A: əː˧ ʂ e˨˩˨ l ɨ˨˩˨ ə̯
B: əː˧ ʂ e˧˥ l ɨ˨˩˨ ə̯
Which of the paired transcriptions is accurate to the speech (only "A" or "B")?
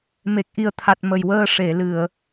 A